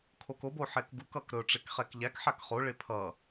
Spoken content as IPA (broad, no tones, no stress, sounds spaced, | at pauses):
kʰ o k o b o ħ ɛ k ɡ u k ʌ k ɾ ɵ ʈ͡ʂ e k χ ɛ k ʎ æ k ħ a k χ o ɭ e pʰ ʌ